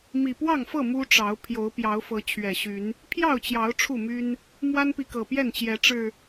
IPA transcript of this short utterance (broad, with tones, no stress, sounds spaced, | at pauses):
m i˨˩ p w ɑ˥˨ ŋ f ɤ˥˨ m u˦ ʈ͡ʂ ɑ˨˦ ʊ̯ pʰ j o˨˦ ʊ̯ p j ɑ˨˦ ʊ̯ f ɤ˨˦ t͡ɕʰ ɥ ɛ˨˩ ɕ y˨˦ n | pʰ j ɑ˥˨ ʊ̯ t͡ɕ j ɑ˨˦ ʊ̯ ʈ͡ʂʰ u˥˨ m y˦ n | m w a˦ n p i˨ k ɤ˨˩ p j ɛ˥˨ n t͡ɕ j ɛ˨˦ ʈ͡ʂ ɻ̩˨˩